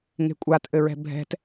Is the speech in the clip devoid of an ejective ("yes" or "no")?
no